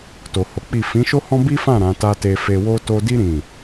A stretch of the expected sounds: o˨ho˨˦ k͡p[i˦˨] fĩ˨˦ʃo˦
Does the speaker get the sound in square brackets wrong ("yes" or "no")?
no